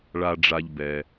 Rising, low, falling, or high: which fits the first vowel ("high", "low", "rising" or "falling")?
low